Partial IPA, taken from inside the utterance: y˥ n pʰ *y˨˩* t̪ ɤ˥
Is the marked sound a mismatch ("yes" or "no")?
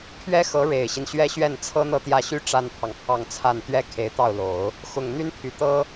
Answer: no